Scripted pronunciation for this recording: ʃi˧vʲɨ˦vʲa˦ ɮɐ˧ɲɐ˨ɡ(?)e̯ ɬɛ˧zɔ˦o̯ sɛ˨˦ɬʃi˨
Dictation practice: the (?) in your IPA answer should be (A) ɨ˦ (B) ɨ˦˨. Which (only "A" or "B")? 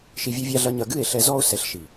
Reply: B